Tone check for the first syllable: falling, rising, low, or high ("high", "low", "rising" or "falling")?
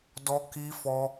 high